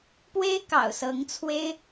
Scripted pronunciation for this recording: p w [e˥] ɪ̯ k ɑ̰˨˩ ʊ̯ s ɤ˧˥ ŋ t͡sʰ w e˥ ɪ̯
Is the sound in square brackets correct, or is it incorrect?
correct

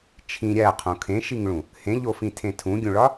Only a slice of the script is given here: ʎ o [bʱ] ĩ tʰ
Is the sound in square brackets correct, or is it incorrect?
incorrect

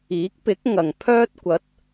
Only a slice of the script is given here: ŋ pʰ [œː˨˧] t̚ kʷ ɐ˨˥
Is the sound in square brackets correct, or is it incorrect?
incorrect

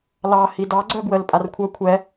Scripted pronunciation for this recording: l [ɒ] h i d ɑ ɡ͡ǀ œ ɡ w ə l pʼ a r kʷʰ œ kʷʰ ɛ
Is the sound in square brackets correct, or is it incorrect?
incorrect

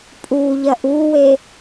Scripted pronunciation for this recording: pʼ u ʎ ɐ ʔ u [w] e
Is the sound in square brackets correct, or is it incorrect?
correct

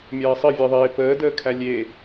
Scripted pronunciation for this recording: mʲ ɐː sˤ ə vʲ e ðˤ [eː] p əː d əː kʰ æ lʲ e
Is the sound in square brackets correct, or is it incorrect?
correct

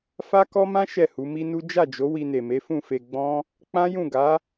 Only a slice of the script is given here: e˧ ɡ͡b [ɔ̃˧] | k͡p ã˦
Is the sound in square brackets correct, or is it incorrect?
incorrect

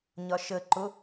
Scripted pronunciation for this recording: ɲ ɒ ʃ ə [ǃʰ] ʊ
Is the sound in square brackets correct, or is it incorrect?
incorrect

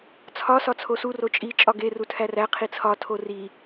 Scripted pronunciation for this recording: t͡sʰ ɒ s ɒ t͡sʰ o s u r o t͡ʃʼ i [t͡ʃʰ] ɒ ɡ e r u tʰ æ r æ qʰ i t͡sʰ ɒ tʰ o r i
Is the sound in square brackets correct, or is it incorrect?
incorrect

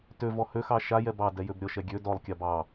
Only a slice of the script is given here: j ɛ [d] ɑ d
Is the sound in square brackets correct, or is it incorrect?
incorrect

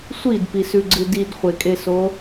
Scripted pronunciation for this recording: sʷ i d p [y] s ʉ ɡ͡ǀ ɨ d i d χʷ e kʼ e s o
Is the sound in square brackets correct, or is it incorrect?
incorrect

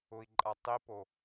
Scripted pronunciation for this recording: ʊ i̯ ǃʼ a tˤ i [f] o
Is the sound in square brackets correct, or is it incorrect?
incorrect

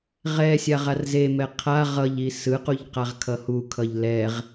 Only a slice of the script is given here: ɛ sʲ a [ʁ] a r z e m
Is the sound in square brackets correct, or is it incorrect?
correct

